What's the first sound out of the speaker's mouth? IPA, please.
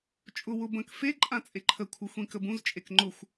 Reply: t͡ʃʼ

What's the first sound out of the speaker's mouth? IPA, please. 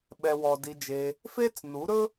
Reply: ɓ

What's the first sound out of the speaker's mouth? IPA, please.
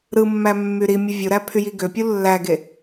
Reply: ɾ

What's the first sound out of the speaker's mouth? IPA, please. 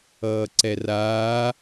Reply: ʌː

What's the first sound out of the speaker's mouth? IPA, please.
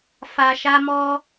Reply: f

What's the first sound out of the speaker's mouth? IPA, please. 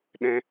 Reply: ɗ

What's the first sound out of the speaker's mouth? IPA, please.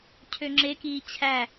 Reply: cʰ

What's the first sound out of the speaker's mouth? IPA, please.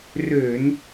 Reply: r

